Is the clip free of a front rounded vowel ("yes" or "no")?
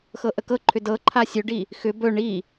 no